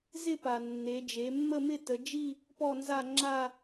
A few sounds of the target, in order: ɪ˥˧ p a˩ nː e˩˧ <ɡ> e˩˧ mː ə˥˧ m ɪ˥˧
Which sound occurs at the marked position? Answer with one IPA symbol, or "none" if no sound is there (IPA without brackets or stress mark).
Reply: d͡ʒ